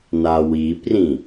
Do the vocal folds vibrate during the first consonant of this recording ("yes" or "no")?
yes